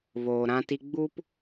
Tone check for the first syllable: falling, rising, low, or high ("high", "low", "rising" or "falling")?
low